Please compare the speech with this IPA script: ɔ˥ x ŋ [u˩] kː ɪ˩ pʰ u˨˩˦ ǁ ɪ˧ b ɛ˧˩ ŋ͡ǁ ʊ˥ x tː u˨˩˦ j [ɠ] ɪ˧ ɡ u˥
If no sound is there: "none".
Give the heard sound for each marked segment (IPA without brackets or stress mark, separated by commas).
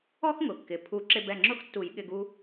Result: ʊ˩, ɠ